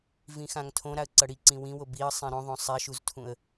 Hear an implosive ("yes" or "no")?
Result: no